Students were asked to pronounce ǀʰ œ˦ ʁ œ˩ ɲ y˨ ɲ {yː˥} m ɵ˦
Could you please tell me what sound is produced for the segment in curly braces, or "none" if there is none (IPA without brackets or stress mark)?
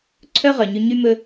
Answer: y˥